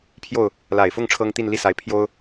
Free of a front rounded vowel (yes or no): yes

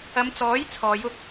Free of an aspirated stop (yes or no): no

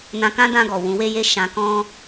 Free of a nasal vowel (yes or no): no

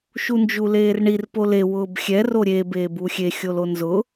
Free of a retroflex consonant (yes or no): no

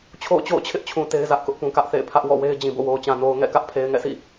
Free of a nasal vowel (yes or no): no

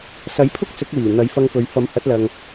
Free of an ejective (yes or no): yes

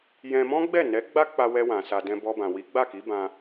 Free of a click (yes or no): yes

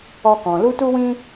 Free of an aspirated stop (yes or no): yes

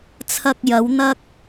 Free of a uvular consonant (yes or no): yes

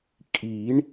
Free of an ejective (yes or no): no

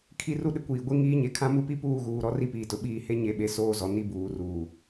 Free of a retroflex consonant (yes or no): yes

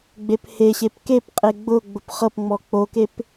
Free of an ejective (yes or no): no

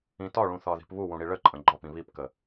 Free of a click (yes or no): no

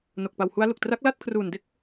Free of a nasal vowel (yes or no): yes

